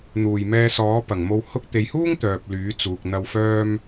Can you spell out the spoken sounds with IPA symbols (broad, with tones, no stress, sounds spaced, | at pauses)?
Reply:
n̪ uː˨˩ j m ɛː˧ s ɔː˨˥ p ɐ˨˩ ŋ m o˧ w h ʊ˧ k̚ t̪ e˨ j h uː˥ ŋ t̪ œː˨ p̚ l yː˨˥ t͡s uː˨ k̚ n̪ ɐ˧ w f œː˧ m